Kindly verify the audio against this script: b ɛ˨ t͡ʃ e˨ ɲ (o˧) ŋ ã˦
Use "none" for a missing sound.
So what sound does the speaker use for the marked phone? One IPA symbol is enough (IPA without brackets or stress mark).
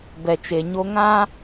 o˧